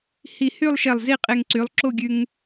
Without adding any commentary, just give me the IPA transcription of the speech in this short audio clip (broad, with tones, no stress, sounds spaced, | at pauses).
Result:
h i˧˩ h y˥˧ lˠ ʃ e˧˩ lˠ z i˥˧ qʼ e˧ ŋ ǀ y˩˧ lˠ ǁ o˥˧ ɡʲ ʉ˧ ŋ